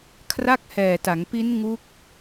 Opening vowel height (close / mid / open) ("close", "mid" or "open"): open